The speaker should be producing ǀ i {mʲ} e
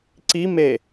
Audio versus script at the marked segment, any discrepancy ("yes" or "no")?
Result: yes